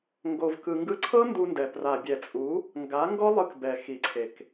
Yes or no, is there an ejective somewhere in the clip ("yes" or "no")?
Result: yes